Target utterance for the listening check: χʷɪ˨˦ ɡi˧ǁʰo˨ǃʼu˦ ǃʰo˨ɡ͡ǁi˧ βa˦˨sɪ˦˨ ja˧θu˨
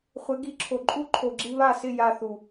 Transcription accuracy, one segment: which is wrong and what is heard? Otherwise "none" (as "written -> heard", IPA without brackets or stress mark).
none